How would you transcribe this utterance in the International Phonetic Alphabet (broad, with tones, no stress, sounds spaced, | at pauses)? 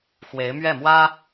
x w e˧˥ ɪ̯ m ɥ ɛ˥˩ m w ä˥